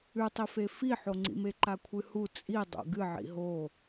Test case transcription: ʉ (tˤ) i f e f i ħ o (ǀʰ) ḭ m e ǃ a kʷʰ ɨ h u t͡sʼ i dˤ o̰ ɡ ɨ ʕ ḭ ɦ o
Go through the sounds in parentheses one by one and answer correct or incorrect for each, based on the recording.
correct, incorrect: ŋ͡ǀ

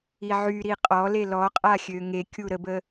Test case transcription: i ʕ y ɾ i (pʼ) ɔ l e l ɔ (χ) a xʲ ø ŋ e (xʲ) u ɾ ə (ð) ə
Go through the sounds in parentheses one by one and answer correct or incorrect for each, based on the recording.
incorrect: qʼ, incorrect: qʼ, incorrect: kʲ, incorrect: b

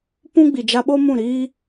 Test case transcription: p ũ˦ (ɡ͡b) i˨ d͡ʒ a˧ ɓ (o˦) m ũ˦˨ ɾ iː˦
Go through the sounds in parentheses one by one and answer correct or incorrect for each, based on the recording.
correct, correct

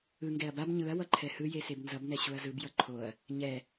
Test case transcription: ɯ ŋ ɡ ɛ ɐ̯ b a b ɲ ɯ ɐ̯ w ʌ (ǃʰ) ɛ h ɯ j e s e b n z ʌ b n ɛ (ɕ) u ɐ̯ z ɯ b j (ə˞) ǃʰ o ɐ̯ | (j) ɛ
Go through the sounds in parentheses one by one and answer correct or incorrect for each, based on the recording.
correct, correct, incorrect: ʌ, incorrect: ɲ

